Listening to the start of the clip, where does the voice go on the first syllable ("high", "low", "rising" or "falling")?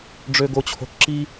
low